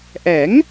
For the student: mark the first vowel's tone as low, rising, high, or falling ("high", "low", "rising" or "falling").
rising